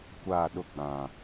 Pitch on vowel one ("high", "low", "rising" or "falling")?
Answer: falling